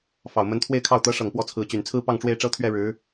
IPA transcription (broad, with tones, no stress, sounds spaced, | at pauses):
f ɑ˨˩ ʊ̯ m ə˧˥ n t̪ʰ w e˥˧ ɪ̯ kʰ ɑ˥˩ ʊ̯ t̪ ɤ˧˥ ʂ ɤ˨˩ ŋ p w ɔ˥˩ t͡sʰ ɹ̩˧˥ t͡ɕ y˨˩ n t͡sʰ ɹ̩˥˧ p ɑ˥˧ ŋ ʈ͡ʂ w e˥˩ ɪ̯ ʈ͡ʂ ɤ˥ t̪ʰ ɥ ɛ˥˩ ɻ ɻ̩˧˥